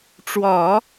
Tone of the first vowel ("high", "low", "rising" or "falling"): low